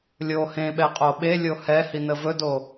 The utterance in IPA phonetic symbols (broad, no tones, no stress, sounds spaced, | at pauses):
lʲ o h ẽ ɓ ɛ qʼ o ɓ e lʲ o h ɛ h i n ə v ɵ d o